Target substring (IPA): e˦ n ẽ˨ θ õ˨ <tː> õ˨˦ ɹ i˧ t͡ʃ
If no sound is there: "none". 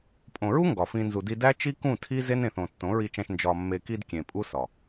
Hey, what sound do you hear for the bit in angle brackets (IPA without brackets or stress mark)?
tː